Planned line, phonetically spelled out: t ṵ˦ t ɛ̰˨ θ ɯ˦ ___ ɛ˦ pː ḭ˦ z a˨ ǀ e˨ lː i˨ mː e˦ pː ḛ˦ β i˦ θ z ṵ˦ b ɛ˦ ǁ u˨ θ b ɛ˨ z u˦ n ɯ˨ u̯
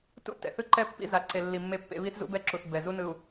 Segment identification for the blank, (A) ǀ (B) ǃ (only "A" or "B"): B